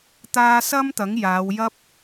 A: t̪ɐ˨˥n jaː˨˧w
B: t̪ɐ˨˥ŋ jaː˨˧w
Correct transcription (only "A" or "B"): B